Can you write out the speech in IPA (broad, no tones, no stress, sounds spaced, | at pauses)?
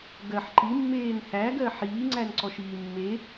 ɡ ɜ ħ ǃ i mː eː n h æ ɡ ɜ ħ iː ŋ͡ǀ æ n ǀ ɔ ʃ iː mː e